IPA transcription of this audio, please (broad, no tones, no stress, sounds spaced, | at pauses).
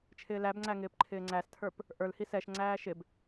t͡ʃʰ ɪː l æ b ŋ͡ǀ æ ŋ ɪː p ǃʰ ɪː ŋ͡ǀ æ s tʰ ə˞ p | ʔ ə˞ l h i s ɛ ʃ ŋ͡ǀ æː ʃ ɪ b